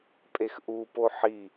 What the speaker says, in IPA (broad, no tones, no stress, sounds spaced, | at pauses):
pʼ e x ʔ u p o ħ i